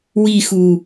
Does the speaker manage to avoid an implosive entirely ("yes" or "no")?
yes